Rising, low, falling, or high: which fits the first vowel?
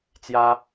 high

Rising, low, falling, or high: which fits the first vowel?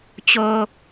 low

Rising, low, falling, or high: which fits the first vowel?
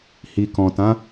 low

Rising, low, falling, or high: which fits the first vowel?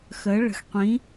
rising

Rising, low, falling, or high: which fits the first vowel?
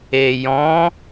low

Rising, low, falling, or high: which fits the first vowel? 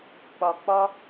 low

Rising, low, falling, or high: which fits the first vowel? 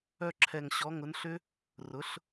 falling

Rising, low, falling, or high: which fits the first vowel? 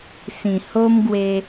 low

